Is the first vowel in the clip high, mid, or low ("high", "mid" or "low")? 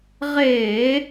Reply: mid